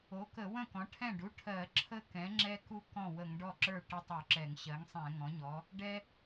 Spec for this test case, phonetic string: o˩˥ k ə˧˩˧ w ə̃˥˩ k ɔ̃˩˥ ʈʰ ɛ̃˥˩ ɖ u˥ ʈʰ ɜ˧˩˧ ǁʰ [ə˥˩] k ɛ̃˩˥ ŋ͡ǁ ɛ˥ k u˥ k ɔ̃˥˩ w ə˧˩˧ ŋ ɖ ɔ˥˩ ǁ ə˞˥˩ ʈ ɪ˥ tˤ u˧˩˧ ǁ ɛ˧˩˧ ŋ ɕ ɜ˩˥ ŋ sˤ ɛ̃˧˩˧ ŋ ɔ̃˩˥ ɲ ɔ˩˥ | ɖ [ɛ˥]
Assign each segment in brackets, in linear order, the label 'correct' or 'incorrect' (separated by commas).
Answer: correct, correct